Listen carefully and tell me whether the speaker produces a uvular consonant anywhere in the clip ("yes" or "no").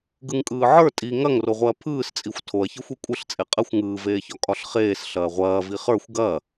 yes